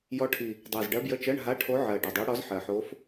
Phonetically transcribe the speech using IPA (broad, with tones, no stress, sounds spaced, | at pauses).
j ɔ˧˥ ʈʰ i˨˩ | dˤ ɜ˨˩ z ɖ ɜ˧˥ b j ə˧˥˧ t͡ʃ ɜ˧˥˧ ɳ ɦ a˧˥˧ ʈʰ o˧˥ ʕ ɜ˨˩ ɖ ɐ˨˩ dˤ ɜ˧˥ ɽ ɔ˧˥ z ħ ɜ˨˩ ħ o˧˥ f